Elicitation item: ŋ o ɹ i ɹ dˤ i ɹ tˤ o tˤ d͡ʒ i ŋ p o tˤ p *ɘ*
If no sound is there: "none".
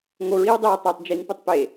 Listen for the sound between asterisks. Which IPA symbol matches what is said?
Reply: e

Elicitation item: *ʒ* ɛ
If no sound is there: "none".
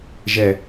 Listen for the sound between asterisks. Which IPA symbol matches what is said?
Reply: ʒ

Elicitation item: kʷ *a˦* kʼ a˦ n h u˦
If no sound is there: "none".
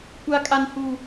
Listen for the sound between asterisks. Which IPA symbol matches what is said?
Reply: a˦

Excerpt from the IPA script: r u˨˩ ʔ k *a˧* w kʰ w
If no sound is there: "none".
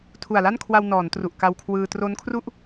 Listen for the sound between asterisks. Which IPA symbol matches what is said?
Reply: a˧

